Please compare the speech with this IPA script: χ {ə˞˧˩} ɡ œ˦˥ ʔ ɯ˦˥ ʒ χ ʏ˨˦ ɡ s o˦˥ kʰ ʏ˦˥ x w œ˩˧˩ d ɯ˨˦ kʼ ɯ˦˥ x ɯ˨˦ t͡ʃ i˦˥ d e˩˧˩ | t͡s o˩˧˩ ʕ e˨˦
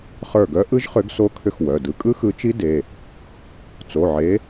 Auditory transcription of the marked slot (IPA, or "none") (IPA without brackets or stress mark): ə˞˧˩